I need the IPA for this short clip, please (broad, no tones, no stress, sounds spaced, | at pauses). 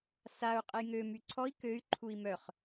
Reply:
s a u̯ qʼ ə j ŋ ø m y ǀʰ ɔ i̯ k ø y̯ ǃʰ u i̯ m œ χ